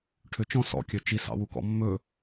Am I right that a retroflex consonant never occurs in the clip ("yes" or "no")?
no